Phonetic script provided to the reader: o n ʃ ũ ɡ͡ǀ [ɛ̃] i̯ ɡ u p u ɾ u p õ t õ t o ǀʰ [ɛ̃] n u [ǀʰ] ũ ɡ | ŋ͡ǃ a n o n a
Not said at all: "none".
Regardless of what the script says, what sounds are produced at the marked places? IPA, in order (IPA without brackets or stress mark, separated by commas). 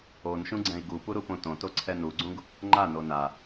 ɛ̃, ɛ, ɡ͡ǀ